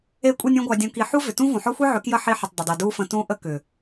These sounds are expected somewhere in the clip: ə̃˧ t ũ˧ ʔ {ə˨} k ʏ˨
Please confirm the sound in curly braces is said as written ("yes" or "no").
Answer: no